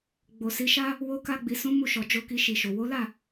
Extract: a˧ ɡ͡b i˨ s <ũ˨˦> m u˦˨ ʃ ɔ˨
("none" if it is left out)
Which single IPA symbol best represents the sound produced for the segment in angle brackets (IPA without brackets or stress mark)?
ũ˨˦